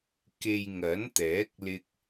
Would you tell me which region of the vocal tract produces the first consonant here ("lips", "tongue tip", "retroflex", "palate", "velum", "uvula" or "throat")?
velum